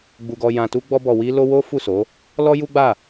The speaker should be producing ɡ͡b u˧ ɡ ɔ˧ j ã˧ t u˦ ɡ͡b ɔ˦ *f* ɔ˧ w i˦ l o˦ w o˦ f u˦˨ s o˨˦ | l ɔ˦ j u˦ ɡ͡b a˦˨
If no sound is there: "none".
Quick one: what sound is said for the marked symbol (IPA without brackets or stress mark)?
b